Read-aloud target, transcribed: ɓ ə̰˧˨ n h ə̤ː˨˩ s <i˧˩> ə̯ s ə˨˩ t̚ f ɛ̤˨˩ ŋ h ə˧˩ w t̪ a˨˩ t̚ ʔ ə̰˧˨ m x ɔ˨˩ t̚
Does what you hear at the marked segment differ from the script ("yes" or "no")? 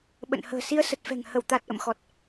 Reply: yes